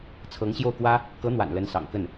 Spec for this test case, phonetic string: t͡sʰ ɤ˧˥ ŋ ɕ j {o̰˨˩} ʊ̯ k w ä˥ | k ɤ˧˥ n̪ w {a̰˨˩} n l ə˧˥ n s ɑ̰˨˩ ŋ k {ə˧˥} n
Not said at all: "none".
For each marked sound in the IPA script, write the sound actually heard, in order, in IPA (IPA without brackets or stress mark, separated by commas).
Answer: o˥˩, a̰˨˩, ə˥˩